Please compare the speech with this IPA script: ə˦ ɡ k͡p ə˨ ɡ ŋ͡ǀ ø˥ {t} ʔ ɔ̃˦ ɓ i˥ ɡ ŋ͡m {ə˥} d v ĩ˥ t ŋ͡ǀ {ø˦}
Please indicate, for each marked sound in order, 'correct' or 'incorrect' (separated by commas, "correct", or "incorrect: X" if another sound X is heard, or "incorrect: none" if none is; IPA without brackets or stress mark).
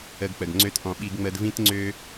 correct, correct, incorrect: ø˥